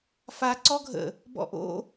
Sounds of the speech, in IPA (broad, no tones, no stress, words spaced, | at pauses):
fa ǀɔɡʱə̰ | bɔ̰ʔo̰